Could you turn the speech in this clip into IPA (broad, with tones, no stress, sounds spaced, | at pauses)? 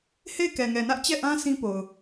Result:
h e˦˨ ɪ̯ k ɛ˨ ŋ ɛ˨ n ä˦ ʔ t͡ɕ ɛ˦˨ ʔ ã˦ s ĩ˦ p o˨ ʊ̯